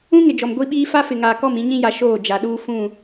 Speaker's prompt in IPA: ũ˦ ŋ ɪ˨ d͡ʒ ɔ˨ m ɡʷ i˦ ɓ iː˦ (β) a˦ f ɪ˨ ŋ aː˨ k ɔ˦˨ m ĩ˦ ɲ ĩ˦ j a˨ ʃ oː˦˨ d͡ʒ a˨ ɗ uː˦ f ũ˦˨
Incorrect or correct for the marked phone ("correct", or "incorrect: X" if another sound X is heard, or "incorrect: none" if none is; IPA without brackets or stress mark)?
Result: incorrect: f